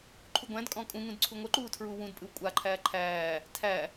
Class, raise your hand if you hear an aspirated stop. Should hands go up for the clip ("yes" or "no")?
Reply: yes